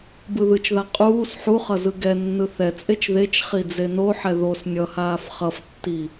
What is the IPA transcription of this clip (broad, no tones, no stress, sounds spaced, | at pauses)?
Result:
b ɯ ð ɯ t͡ʃ ð a qʼ uː s ħ u χ ʌ z ɯ ɡ ɛ nː ɯ θ ɛ t͡sʼ e t͡ʃ ð e t͡ʃ χ i d͡z e n o ħ ɛ ð o s nʲ ʌ h aː f χ ʌ f tː i